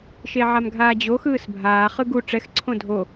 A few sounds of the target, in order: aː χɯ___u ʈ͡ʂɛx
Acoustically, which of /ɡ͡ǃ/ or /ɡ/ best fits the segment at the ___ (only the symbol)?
ɡ